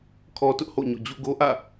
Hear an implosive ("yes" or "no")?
no